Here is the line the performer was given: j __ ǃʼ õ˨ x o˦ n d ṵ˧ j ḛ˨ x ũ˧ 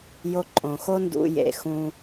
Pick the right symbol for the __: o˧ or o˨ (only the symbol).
o˧